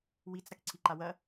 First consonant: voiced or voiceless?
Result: voiced